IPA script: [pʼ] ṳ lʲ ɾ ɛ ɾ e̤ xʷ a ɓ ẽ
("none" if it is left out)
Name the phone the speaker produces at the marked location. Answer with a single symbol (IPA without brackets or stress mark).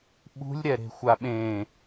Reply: ɓ